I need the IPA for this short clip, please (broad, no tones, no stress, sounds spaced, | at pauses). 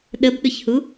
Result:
ɗ ə b ɗ ʊ ç h u